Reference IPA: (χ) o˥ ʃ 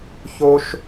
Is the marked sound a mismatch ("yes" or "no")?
yes